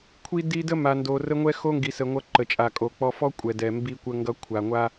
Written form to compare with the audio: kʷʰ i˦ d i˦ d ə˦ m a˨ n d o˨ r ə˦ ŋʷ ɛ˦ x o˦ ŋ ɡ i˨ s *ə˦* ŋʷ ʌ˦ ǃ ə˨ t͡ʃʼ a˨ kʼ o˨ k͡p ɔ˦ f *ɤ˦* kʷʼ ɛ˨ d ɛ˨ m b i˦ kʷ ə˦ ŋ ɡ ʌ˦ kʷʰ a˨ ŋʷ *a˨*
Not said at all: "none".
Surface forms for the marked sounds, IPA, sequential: ə˨, ɔ˦, a˦

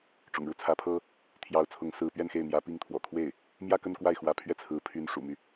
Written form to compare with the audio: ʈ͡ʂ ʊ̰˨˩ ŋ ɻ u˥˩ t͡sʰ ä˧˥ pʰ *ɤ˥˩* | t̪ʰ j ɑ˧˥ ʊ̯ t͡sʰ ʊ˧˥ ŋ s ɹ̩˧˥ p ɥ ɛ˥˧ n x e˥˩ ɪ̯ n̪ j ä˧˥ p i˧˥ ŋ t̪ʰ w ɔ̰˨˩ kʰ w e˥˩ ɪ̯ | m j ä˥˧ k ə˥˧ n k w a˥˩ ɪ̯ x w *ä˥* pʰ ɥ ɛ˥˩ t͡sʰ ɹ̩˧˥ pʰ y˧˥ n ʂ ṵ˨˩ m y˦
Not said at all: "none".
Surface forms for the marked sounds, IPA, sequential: ɤ˥, ä˧˥

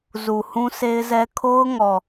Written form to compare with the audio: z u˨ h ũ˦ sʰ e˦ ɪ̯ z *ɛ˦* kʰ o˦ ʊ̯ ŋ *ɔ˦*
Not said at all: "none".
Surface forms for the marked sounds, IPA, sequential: ɛ˦, ɔ˨

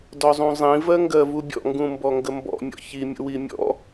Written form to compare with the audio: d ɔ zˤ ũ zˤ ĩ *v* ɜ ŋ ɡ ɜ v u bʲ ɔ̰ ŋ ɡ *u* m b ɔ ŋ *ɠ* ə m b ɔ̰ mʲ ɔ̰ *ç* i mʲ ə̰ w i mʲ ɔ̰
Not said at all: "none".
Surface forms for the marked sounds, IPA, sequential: v, ũ, ɡ, ç

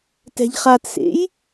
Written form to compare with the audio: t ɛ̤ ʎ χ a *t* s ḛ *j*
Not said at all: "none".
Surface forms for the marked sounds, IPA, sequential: t, j

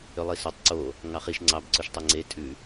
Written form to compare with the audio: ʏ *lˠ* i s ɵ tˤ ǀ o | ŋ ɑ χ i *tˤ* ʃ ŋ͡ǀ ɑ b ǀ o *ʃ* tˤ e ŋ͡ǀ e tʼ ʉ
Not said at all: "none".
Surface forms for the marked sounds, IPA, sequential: lˠ, none, ʃ

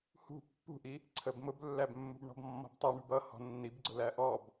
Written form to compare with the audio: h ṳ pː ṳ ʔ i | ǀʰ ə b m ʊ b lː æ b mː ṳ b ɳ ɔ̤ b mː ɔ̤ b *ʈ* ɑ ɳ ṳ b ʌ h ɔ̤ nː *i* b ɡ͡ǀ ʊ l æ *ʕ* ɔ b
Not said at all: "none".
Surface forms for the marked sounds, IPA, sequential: tˤ, i, ʔ

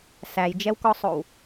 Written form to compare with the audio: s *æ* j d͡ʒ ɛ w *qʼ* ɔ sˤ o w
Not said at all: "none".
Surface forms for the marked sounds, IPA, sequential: æ, k

